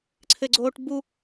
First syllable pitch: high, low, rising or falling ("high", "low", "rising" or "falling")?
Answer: low